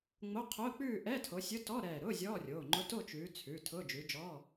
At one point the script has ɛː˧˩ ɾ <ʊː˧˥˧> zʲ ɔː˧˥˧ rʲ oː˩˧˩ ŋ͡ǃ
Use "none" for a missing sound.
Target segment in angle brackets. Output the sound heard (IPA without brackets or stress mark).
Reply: ʊː˧˥˧